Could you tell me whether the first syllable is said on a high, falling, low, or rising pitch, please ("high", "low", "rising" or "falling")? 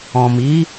low